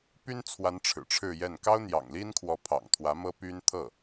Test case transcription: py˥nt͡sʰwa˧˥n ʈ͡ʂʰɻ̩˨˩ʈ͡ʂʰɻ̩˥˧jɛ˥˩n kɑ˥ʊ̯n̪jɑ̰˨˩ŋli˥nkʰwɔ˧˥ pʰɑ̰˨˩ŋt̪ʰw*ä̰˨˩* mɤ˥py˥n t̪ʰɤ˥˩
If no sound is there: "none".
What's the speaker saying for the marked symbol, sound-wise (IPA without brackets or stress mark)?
ä˧˥